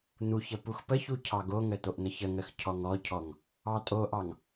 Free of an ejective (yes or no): no